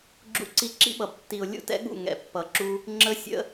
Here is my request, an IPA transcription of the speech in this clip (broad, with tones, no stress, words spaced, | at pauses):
ɡ͡ǁṵ˦ǀi˦ ǁḭ˦ɓʌ˨btːi˨ʊ̯ lʲṵ˦tɛ̰˦ɠṵ˦˨ ŋɛ̰˨pːʌ˨ǁu˦ | ŋ͡ǁə˦sʲə̰˦